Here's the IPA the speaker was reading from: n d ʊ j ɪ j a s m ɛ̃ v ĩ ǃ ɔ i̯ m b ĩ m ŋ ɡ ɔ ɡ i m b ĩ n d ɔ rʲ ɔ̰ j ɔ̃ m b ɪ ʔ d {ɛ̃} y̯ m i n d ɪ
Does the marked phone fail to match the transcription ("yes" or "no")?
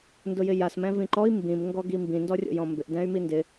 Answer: no